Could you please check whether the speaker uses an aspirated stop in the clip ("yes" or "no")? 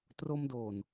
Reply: no